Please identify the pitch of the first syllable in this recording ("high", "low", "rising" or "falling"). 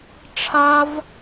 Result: high